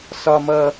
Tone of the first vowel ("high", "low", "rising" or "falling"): high